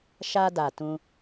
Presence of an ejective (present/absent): absent